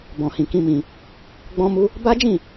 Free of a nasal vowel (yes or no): no